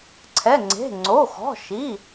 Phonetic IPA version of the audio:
ǀʰɛ˩˧˩ŋ͡ǀe̤˩˧˩ ŋ͡ǀo˩˧˩xɔ̤˩˧˩ʃi˩˧˩

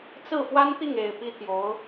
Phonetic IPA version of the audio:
t͡sɹ̩˥˩fwa˥nt̪i˥˩ŋ e˨˩ɪ̯ pi˥t̪ʰjo˧˥ʊ̯

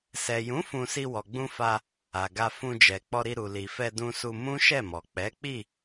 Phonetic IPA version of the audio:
sɛ˨jũ˨˦ fũ˧ si˧wɔ˨ɡ͡bũ˧ fa˧ | a˨ɡa˧ fũ˧d͡ʒɛ˨ k͡pɔ˧ɾi˧ ɾu˨li˨ fɛ˧dũ˧su˧ mũ˦ʃɛ˦˨mɔ˨ k͡pɛ˨˦k͡pi˦˨

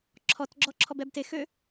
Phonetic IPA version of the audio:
ǁʰɔtɡ͡ǁɔǁʰɔb ɛbtex ø

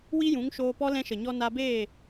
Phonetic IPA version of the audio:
wi˦jũ˨˦ŋʃoː˧pɔ˦ lɛ̃˧ʃə˨ɲɔ˧ na˧beː˦˨

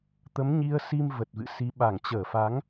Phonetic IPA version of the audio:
t̪ə˨˦mɲi˧ə̯si˧m və˨˩t̚vɨ̰˧˨si˨˦ ɓa˧˩ŋt͡ɕəː˧˩fa˨˦ŋ

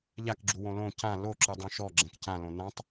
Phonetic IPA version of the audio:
ʎakɡ͡ǁuwõ lõ cã loǁɯdˤõ ʃɔɡ͡ǁɛ̃k cãlõ nãtˤ

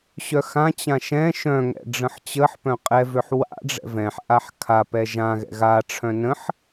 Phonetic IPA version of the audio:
ɕœxãt͡ɕã ʃɛ̃ ʃœ̃ŋɛ̰ ɖ͡ʐə̃ħt͡ɕəħpœ̃ qʼɛvøħ wa̰ ɖ͡ʐɛ̰vɛ̃ħʔaħ kʰa pɛʒãɣɛ̰ ɣaʈ͡ʂʰœ̃ nə̃ħ

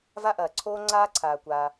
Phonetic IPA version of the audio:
va˥ʔɐː˩ǀʰoː˥ ŋ͡ǀaː˥ǀʰaː˩kʷaː˩

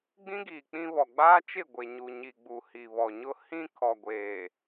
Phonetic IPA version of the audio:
ɡ͡bĩ˦ɡiː˨ k͡pĩ˦βɔ˨ ɡ͡baː˦t͡ʃɪ˦˨ɡʷe˨ ɲu˨ɲi˨ɡ͡bu˨ hi˨βɔ˨ɲʊ˦ hĩ˦ kʰɔ˨ɡʷeː˨

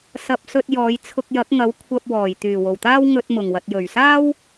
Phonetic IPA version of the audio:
sɐ˧p̚sɵ˧t̚jɔː˨˧j t͡sʰʊ˧k̚jɐ˨˥k̚ŋɐ˨˥w kʷʰɐ˧p̚wɔː˨˩j t̪yː˨˩wo˨˩wt̪aː˥w ŋɵ˧t̚mʊ˨˩ŋwɐ˨t̚ jɵ˨˩ɥsaː˥w

